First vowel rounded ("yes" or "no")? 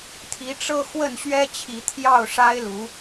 no